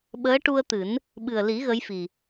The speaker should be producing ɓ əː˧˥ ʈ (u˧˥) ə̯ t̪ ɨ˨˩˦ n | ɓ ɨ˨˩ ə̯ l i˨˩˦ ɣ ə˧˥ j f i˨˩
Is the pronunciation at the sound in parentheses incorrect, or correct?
incorrect